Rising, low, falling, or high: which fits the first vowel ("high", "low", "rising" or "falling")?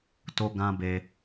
high